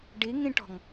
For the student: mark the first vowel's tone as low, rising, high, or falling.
rising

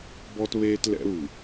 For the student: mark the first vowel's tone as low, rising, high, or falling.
high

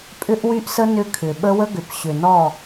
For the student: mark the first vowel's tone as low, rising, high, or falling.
high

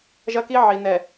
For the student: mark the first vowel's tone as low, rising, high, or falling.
high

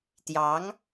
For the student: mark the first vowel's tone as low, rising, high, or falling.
rising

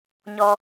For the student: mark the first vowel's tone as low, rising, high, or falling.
high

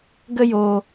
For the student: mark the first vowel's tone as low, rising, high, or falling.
high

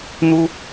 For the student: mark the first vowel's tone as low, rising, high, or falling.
high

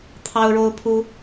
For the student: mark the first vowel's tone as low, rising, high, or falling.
high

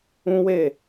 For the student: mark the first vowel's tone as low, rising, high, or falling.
high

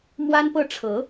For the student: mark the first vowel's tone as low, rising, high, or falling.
high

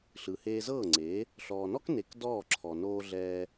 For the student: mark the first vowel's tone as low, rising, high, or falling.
low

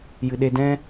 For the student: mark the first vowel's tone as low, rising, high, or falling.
low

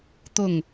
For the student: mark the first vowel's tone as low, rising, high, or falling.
falling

